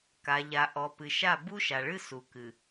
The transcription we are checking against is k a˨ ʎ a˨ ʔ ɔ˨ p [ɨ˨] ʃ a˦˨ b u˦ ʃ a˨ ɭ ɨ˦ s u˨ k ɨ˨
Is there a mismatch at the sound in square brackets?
no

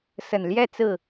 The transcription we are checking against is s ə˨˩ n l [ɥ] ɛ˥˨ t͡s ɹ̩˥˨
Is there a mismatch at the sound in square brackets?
yes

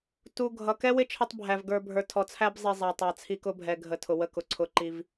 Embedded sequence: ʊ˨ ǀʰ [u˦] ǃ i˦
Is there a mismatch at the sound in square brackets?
yes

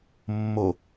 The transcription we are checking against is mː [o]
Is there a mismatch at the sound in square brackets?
no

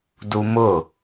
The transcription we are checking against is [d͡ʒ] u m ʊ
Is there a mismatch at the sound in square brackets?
yes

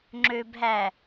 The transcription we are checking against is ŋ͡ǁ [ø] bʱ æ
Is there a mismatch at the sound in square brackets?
no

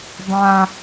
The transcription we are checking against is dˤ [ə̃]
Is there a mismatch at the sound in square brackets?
yes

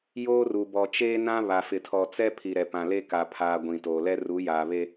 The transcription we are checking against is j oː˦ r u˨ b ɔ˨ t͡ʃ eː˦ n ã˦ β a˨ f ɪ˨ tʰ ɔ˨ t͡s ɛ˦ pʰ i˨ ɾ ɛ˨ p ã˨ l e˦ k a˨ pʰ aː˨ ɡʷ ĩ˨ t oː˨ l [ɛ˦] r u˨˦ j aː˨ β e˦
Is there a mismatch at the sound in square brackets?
no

